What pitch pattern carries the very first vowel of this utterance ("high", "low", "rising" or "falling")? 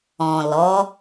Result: low